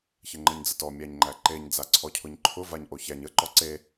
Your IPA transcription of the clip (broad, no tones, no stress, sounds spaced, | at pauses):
ç ə ŋ͡ǃ ə ɲ d͡z ə t ɔ mʲ æ ɲ ŋ͡ǃ æ ǃ e ɲ d͡z a ǀʰ ɔ cʰ ʊ ɲ ǃʰ ʊ v a ɲ ʔ o ç æ ɲ ə ǃ ɔ ǀ e